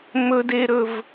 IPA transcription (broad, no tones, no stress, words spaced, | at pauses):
mɵdeɾɵv